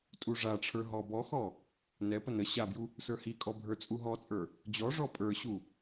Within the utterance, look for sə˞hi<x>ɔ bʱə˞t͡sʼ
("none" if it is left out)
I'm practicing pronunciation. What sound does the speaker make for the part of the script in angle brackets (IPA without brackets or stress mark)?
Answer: kʼ